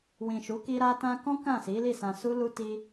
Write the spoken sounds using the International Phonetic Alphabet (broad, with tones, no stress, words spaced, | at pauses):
wĩ˨ʃu˨˦ki˧ ɾa˧tã˧kɔ̃˦ kã˦˨si˨˦li˦˨ sã˧ su˦lu˦ ti˧